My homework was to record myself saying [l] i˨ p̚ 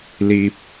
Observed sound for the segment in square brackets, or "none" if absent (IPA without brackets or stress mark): l